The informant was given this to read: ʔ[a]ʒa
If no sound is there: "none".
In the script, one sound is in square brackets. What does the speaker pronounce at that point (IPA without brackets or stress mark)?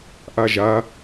a